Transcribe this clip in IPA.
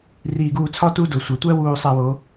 r iː˨ ɡ uː˨ t͡sʰ ɒ˦ t u˦ d o˨ sʷ æ˨ tʷ æ˦ w uː˨ sˤ æ˨ w o˨˦

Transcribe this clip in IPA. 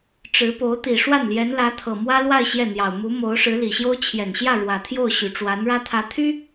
ʈ͡ʂ ɻ̩˧˥ p o˧˥ ʊ̯ t̪ i˨˩ ʂ w a˥˩ n l j ɛ˧˥ n l ä˧˥ t̪ʰ ɤ˨˩ m w ä˥ l w a˥˧ ɪ̯ ɕ j ɛ˥˩ n̪ j ɑ˨˩ ʊ̯ m u˧˥ m o˧˥ ʊ̯ ʂ ɻ̩˧˥ l i˨˩ ɕ j o˥ ʊ̯ t͡ɕʰ j ɛ˨˩ n ɕ j ä˥˩ ɻ w ä˨˩ t̪ʰ j o˥˩ ʊ̯ ɕ y˨˩ ʈ͡ʂ w a˧˥ n ɻ ä˥ t̪ʰ ä˧˥ t̪ʰ y˥

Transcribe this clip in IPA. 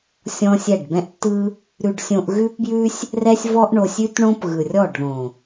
sʲ ɔ̃˦ sʲ ɛ˦˨ ɖ b ɛ̃˦ ʔ tː ɯ˦ | ɾ ʉ˧ ɖ sʲ õ˧ ʔ ɣ ʉ˦ p b j ʉ˦ sʲ | r ɛ˦ sʲ v ɔ˦ ʔ ɳ o˧ sʲ ʉ˦ t ɳ õ˦ p ɣ ɯ˨ rʲ ɔ˦˨ ɖ ð õ˨

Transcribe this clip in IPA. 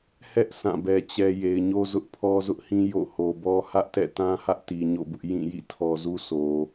h ɛ˦ ʔ s ã˦˨ b ɛ˦ t͡ɕ ɛ˦ j e˨ ɪ̯ ɲ o˦ z ʊ˦ ʔ pʰ ɔ˦ z ʊ˦ ʔ h ĩ˦ j o̰˦˨ h o˨ b ɔ˦ h ä˦ ʔ t ɛ̰˦˨ t ã˦ h ä˦ ʔ t i˨ ɲ o̰˦˨ b ʊ˦ ʔ j ĩ˦˨ j ḭ˦˨ tʰ ɔ˨ z u˦ s o˨

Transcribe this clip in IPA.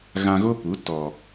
ɣ ã˧ ɣ o˦ p u˨˦ t ɔ˨

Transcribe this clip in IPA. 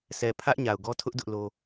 sʰ ɛ˨ pʰ ä˦ ʔ ɲ a˨ ʊ̯ ɡ ɔ˦ tʰ ʊ˦ ʔ d ʊ˦ ʔ l o˦

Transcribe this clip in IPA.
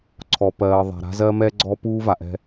ǀʰ ɔ˨ p ɜː˨ ðˤ a̤˨ ɾ a̤˦ z ɜ˦ m ɛː˦ ɡ͡ǀ ɔː˦ p uː˦ v a˨ ʔ ɛ̤˦

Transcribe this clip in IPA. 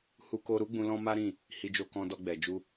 h u˦ k o˦ ɾ u˦ ɡ͡b ũ˧ l ɔ̃˦ m a˦ ɾ ĩ˦˨ | h i˧ d͡ʒ o˧ k ɔ̃˧ d ɔ˧ ɡ͡b ɛ˨ d͡ʒ u˧

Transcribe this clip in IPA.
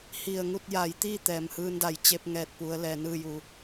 h i˧˩ ə̯ ŋ u˥˨ t̚ j a˩˧ j t̪ i˥˨ t̪ ɛː˩ m h ɯː˧ n d a˩˧ j t͡ɕ e˧ p̚ ŋ ɛː˧˩ t̚ p u˩˧ ə̯ l ɛː˩ n ɯː˥˨ j u˧˩

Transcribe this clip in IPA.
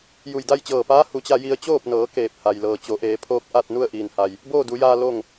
j u˧˩ j d a˥˨ j t͡ɕ ɤː˧˩ p aː˧˥ h u˩˧ t͡ɕ a˧ j i˧ ə̯ t͡ɕ oː˥˨ p̚ n ɤː˩˧ k eː˧˩ p̚ h a˩ j l ɤː˩ t͡ɕ o˩˧ ʔ eː˩˧ pʰ oː˧ k̚ ʔ a˥˨ t̚ n u˥˨ ə̯ ʔ iː˩ n h a˩ j | b oː˥˨ d u˩˧ j aː˧ l o˥˨ ŋ

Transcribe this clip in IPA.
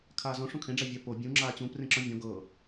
kʰ aː z ɔ̃ ʂ õ kʰ ẽ ɖ͡ʐ a vʲ a p o bʲ ũ ŋ͡ǁ aː t͡ɕ ũ p r ẽ ǁ ɔ̃ vʲ ɔ̃ ɡ ɤ

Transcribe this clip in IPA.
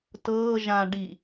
t ɤː ʒ ã ɖ i

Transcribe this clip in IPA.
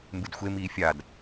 m b ɨ d xʷ e m iː fʲ a d

